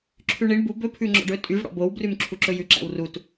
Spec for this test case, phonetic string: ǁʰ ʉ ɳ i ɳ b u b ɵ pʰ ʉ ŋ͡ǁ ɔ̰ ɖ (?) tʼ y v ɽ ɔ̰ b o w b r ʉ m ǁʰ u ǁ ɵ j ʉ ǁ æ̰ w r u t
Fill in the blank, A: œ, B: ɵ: B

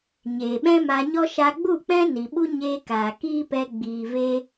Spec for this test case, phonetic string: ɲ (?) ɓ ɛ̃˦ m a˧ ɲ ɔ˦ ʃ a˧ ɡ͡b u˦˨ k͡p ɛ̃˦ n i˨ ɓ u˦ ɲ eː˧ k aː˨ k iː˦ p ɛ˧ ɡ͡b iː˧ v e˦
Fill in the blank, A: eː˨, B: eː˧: A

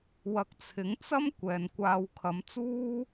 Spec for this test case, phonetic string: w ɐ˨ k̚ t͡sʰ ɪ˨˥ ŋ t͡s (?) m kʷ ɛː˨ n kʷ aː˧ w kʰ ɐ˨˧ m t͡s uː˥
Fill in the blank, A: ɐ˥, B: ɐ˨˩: A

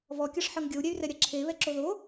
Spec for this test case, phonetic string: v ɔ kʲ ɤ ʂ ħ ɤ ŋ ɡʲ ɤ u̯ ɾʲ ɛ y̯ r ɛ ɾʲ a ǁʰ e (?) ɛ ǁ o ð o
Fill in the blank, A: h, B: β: B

